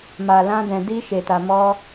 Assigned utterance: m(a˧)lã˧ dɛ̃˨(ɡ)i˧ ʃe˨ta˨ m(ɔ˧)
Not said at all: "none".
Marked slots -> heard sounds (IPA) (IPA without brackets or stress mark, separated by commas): a˨, d, ɔ˧